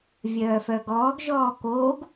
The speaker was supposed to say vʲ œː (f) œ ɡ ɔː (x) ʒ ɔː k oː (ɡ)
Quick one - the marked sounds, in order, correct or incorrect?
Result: correct, incorrect: ɡ, correct

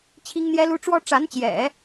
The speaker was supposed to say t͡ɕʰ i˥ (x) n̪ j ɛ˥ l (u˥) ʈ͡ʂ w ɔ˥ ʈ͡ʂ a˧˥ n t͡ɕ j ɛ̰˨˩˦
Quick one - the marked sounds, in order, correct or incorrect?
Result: incorrect: ŋ, correct

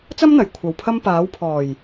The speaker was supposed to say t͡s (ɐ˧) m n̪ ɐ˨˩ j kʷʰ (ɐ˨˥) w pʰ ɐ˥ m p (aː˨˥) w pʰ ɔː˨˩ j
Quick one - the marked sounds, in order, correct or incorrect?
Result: incorrect: ɐ˥, incorrect: ɐ˨, correct

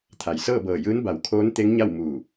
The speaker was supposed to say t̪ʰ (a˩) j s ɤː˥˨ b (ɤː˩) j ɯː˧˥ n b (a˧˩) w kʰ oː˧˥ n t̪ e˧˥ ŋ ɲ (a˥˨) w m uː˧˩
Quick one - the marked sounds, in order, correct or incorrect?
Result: correct, incorrect: ɤː˧˩, incorrect: a˩˧, correct

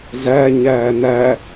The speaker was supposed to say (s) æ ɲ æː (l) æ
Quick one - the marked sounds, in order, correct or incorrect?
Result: incorrect: z, incorrect: n

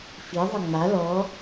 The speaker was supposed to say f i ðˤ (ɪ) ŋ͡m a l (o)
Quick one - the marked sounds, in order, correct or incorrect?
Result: incorrect: ə, incorrect: ɔ

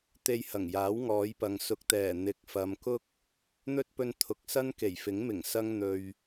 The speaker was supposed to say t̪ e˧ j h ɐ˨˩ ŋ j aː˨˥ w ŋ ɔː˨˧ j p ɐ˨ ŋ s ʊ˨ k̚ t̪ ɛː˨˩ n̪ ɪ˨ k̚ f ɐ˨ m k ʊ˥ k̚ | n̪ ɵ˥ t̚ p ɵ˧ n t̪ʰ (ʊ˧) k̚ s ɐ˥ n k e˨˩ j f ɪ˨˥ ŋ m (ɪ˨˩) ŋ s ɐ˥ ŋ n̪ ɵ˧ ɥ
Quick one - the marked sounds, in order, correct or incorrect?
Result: incorrect: ʊ˨, correct

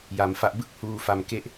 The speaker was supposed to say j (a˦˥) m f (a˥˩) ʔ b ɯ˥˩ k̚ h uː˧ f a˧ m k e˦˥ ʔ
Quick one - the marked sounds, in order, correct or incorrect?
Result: incorrect: a˧, incorrect: a˦˥

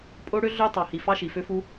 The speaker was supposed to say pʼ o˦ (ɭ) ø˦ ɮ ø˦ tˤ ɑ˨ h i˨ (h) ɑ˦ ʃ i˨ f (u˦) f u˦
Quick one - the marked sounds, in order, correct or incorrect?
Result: incorrect: ɽ, incorrect: f, incorrect: ø˦

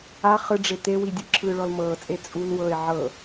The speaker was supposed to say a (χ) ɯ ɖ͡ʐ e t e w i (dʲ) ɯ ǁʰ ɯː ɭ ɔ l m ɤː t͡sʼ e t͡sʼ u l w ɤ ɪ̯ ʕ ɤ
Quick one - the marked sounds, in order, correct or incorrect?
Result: correct, correct

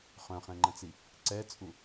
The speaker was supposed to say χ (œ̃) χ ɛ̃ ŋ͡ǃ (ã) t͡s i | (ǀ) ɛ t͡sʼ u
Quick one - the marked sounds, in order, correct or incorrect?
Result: correct, incorrect: ɐ̃, correct

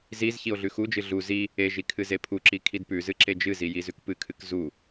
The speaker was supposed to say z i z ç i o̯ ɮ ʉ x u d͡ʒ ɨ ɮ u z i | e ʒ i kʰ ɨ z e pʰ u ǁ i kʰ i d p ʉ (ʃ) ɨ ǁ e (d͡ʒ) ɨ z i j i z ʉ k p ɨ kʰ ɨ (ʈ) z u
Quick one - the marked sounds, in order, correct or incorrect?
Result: incorrect: z, correct, incorrect: k

